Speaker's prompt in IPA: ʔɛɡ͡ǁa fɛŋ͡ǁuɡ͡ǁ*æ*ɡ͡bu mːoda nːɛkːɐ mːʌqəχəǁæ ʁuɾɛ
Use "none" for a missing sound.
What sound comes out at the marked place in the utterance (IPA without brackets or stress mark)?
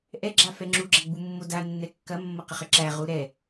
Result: ɐ